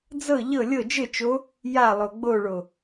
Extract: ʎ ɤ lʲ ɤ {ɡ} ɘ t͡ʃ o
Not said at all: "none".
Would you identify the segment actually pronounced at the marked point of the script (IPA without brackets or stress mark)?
d͡ʒ